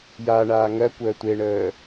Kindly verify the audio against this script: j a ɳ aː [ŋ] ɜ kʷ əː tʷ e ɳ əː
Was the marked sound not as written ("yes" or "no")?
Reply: no